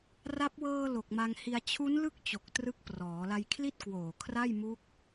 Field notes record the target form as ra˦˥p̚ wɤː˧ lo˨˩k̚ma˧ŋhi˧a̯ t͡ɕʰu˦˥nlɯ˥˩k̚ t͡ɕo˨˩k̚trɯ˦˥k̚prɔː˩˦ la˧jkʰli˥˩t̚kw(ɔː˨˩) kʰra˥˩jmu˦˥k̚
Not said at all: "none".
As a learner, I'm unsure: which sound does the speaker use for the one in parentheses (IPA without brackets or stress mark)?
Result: oː˨˩